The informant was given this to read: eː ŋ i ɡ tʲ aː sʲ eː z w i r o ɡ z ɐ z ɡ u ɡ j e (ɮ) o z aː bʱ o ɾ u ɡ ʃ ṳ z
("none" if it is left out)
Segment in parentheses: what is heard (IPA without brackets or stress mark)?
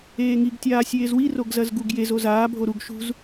z